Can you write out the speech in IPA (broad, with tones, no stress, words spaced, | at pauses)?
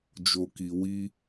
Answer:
d͡ʒo˨ki˨ wi˧